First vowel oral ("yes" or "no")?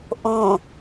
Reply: no